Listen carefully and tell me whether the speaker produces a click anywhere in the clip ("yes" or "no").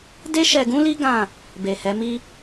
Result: no